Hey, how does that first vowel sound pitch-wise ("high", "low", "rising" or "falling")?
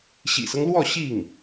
low